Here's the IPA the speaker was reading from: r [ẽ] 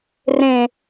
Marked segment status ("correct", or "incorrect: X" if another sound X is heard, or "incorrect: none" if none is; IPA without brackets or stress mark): correct